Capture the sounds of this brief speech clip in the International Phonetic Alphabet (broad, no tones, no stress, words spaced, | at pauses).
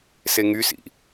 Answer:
seŋysḭ